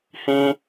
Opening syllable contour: high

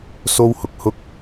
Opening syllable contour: high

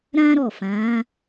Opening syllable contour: high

